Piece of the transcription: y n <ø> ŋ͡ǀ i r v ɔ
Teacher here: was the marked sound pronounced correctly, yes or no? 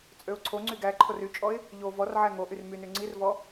no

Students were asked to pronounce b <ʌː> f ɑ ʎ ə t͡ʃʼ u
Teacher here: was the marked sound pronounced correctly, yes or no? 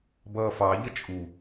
yes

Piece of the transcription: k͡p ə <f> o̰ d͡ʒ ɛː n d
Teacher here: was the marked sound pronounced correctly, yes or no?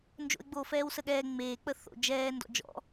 no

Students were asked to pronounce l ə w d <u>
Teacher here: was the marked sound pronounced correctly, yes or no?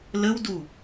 yes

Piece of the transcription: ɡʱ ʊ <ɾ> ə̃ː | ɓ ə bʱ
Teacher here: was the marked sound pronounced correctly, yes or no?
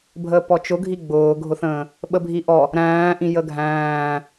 no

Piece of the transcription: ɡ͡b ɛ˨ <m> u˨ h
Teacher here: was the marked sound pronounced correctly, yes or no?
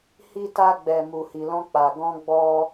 yes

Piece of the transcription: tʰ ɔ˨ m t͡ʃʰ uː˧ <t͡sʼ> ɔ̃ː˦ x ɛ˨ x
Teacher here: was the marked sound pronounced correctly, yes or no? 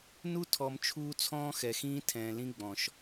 no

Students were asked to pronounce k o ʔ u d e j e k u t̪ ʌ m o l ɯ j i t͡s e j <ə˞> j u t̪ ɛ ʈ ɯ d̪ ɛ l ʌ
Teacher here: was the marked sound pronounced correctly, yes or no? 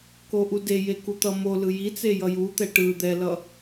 no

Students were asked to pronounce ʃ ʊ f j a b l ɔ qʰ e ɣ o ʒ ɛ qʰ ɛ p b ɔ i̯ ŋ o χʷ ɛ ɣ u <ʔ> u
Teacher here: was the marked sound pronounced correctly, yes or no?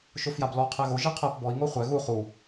no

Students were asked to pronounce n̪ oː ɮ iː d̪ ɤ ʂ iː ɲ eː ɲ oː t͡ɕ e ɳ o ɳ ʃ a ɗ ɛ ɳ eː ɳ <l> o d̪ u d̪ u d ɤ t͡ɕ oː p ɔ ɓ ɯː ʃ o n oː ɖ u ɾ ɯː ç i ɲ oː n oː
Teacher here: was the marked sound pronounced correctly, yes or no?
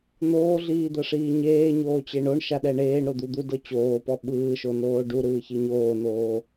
no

